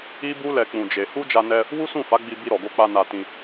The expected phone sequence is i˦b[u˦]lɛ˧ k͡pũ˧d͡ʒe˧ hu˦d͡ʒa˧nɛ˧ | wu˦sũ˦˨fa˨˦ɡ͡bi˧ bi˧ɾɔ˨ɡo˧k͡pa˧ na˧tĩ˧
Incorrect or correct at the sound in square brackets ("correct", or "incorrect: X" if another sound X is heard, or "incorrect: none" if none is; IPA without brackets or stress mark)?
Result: correct